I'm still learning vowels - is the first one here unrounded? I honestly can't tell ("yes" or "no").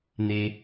yes